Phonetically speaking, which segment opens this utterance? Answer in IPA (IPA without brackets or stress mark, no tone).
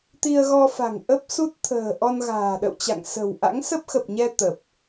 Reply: t̪